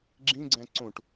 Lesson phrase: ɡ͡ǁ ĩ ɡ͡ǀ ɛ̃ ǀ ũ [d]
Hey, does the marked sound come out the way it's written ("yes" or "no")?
no